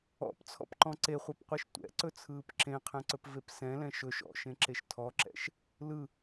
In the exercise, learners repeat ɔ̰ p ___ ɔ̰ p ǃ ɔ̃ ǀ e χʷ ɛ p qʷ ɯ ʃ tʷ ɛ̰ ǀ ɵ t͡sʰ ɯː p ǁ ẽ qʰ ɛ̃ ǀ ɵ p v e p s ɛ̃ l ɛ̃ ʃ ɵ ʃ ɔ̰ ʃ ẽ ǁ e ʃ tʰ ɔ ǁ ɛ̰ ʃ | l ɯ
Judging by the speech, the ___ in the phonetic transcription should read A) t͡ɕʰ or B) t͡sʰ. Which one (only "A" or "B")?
B